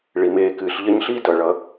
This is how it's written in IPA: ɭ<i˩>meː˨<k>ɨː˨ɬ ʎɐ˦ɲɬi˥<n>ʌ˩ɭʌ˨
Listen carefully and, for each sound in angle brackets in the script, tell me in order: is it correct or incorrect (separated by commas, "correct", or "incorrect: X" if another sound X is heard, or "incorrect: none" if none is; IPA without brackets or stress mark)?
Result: correct, correct, incorrect: d